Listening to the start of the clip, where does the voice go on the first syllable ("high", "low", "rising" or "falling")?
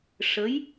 rising